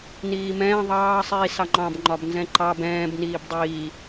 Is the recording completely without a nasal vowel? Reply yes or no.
no